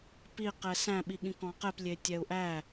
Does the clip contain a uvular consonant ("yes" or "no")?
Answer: yes